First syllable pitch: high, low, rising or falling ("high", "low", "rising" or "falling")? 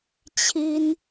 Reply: high